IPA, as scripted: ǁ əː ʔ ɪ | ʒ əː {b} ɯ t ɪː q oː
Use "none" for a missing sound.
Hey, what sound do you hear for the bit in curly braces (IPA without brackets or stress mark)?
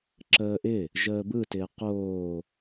b